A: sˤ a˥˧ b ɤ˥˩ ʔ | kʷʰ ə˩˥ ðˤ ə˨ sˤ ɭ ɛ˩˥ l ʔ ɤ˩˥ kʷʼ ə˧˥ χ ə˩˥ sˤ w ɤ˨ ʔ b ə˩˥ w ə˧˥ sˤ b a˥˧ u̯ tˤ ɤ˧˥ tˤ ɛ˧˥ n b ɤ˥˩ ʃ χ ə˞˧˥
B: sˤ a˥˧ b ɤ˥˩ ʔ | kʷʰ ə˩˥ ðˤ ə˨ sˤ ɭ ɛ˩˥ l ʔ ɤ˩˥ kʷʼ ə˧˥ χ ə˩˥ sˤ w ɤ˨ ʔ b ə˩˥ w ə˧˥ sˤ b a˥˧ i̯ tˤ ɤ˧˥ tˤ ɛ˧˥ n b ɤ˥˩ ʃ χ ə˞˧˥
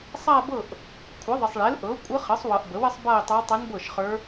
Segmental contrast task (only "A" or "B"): B